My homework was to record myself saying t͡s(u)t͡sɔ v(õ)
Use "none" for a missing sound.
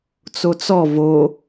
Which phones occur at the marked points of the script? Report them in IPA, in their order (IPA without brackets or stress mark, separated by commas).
o, o